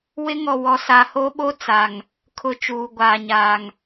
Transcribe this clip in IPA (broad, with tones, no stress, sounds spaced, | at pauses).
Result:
w ɪ˦ ŋ ɔ˨ w ɔ˨ s a˨ h o˦ ɓ o˦ t͡s a˨ ŋ | kʰ ʊ˦˨ t͡ʃ uː˨ ɡʷ aː˨ ɲ aː˨ ŋ